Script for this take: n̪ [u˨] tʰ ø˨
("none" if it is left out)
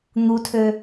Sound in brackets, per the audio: u˨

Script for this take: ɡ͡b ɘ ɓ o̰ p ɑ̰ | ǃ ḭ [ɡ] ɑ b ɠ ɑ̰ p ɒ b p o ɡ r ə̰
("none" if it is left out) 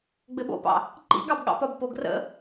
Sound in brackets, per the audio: ɡ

